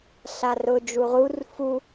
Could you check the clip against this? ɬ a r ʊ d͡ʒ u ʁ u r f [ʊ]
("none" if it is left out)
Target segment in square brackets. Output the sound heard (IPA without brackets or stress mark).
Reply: u